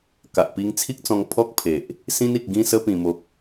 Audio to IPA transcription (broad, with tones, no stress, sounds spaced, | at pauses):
k a˨ ʔ p i˧ ŋ t͡sʰ i˦ k̚ t͡s ɔ̃˧ ŋ pʰ ɔ˦ k̚ pʰ e˨ ʔ | s ĩ˧ n i˨ k̚ ɡ ĩ˧ s ə˧ p ĩ˨˩ m o˨ k̚